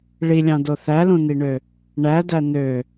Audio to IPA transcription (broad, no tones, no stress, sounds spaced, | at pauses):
ɭ i lʲ ɑ̃ d o θ æ l ũ n i ɳ ø | ɳ æ d æ n ø